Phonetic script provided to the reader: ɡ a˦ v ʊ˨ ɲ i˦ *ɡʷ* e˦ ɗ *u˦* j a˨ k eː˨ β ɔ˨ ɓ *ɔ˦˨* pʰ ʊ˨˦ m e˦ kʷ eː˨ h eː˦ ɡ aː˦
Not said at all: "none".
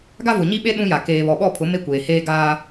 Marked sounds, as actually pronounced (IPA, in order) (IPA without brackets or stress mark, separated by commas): ɓ, ũ˦, ɔ˦˨